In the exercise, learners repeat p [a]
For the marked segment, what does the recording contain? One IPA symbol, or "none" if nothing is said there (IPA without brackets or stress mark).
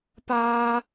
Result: a